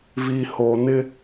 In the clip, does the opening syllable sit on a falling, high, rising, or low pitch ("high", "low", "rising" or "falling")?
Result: low